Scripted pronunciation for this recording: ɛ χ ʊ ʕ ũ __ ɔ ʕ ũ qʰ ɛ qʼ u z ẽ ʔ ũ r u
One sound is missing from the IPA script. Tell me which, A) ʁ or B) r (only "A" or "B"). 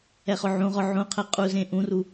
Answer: A